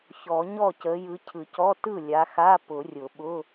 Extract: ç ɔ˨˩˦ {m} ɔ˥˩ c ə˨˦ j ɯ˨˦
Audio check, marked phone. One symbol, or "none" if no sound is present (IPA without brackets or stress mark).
ɲ